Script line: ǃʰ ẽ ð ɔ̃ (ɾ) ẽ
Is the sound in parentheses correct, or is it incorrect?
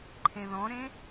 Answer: correct